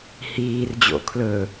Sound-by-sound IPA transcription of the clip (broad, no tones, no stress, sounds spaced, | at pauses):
h iː r d͡ʑ o̰ kʰ l ɵ